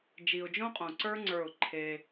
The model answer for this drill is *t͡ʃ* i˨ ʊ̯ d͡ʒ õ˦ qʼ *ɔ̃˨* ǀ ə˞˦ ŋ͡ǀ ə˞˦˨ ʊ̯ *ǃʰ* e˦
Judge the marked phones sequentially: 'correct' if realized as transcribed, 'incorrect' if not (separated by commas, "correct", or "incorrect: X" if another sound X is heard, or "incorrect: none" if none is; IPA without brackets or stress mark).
incorrect: d͡ʒ, incorrect: õ˨, correct